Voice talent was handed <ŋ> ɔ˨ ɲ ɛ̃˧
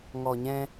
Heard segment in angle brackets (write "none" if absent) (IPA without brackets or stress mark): ŋ